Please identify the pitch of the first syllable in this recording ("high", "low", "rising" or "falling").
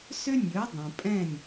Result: high